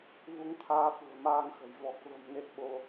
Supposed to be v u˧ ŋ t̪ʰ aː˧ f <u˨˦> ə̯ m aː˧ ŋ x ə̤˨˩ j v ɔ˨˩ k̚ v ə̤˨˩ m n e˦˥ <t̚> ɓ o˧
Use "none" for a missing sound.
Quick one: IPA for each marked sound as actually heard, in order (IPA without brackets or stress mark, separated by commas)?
ṳ˨˩, t̚